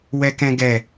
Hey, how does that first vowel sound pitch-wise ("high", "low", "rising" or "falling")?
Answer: high